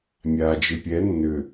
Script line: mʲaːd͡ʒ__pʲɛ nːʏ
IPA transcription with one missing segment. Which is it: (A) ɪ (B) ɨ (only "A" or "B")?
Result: B